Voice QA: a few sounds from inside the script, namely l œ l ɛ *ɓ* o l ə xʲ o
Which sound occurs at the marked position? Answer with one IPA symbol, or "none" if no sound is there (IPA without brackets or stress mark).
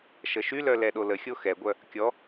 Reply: ɗ